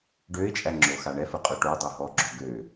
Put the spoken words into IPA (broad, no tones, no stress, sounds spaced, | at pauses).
ɖ ø ɪ̯ t͡ʃʼ æ ŋ͡ǁ o x a ɳ ɛ f ə qʼ ø ʈ o dˤ o ɦ ɔ ɡ͡ǁ o ɡ ø